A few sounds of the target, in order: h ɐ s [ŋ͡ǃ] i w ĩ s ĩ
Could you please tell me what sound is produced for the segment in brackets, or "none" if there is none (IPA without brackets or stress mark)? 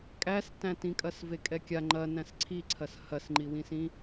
ŋ͡ǃ